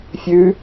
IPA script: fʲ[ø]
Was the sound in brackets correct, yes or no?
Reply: no